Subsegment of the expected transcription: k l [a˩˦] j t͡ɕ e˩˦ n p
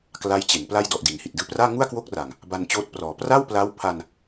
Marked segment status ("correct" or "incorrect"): incorrect